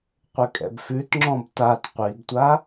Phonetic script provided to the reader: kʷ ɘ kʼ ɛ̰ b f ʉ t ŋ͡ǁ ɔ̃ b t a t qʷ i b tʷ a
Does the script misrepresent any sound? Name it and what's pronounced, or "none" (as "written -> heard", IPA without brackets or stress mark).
kʷ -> qʷ